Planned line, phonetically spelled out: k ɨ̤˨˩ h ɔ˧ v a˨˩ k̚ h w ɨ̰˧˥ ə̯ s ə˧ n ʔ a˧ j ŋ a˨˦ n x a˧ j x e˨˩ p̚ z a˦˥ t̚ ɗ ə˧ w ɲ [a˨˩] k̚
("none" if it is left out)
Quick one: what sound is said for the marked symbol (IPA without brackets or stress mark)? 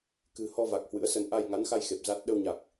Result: a˨˩